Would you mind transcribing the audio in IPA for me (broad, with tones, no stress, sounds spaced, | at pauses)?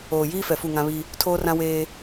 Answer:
oː˨ j iː˦ f ɛ˨ f u˦˨ ŋ ã˦ β i˦ | tʰ oː˦ r ã˦ w eː˦